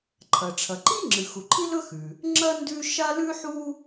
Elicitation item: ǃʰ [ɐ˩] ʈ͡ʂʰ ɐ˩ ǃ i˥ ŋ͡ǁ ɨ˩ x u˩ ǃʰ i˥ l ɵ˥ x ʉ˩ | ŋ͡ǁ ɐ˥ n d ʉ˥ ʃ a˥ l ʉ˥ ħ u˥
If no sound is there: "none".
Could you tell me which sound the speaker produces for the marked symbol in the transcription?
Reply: ɐ˩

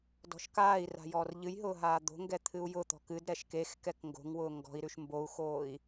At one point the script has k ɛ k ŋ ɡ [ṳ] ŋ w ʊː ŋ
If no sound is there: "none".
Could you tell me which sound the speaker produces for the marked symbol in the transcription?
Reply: o̤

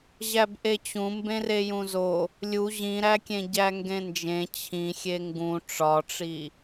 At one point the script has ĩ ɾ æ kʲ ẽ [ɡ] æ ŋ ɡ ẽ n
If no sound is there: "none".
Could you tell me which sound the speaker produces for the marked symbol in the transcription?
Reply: ɟ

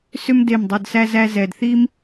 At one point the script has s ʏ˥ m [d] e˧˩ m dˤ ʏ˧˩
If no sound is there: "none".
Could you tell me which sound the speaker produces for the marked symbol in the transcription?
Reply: d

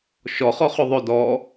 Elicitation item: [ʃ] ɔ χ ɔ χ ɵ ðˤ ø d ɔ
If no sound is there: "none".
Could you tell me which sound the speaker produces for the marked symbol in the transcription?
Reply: ʃ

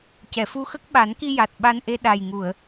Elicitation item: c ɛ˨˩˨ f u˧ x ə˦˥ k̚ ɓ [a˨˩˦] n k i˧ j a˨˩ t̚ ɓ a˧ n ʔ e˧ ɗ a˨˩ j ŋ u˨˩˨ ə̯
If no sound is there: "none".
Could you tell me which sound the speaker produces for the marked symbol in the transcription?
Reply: a˨˩˦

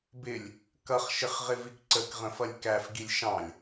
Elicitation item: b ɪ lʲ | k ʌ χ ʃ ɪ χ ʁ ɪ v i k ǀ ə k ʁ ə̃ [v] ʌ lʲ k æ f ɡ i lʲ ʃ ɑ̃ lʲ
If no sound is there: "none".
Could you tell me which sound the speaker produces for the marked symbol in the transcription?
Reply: f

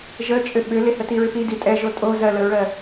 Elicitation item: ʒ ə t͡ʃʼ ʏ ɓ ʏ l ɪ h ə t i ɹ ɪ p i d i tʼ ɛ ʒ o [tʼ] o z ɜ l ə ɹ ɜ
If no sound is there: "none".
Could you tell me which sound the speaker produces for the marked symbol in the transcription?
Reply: tʼ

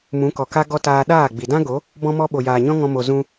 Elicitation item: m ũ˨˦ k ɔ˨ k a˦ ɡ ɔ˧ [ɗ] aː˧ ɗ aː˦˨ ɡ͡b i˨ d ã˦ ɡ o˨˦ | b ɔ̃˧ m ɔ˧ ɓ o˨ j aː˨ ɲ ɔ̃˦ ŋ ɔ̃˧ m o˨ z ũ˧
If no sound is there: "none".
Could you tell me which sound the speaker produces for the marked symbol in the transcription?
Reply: t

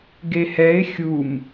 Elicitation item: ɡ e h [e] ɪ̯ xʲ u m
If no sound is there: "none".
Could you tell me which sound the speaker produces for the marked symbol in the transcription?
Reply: ɛ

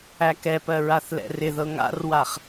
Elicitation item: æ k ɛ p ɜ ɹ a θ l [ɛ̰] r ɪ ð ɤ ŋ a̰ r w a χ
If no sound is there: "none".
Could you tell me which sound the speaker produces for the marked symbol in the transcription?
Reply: ɛ̰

